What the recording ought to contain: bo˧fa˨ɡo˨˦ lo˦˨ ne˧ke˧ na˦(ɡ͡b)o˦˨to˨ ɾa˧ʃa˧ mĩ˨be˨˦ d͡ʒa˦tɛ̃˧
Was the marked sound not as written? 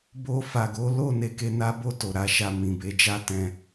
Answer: yes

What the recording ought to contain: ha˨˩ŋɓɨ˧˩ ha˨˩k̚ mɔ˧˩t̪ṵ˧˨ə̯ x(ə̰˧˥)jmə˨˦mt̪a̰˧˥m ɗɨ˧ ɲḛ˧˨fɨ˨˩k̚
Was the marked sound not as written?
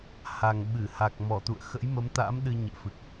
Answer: no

